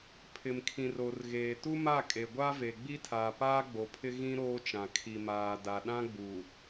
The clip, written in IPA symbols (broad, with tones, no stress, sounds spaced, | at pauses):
pʰ ɪ˨ m kʰ ĩ˨ r o˨ r ɣ eː˨ t u˦ m a˦˨ kʼ e˨ ɡʷ a˦ v e˨ ɡ͡b i˦ tʰ aː˨ p aː˦ ɡ͡b o˨ pʰ ɪ˦ ɣ ĩ˦ ɾ oː˦ t͡ʃ ã˨ kʰ i˨ m aː˨ d a˨ ɗ ã˦ ɡ͡b u˨